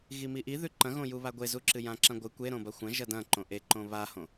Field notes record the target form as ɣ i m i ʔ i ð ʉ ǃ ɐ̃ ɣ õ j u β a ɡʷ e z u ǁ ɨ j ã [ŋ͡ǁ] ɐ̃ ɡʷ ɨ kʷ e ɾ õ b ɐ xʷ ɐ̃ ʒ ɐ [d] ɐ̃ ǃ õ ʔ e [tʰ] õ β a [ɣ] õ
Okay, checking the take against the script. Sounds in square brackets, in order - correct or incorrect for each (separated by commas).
incorrect, correct, incorrect, incorrect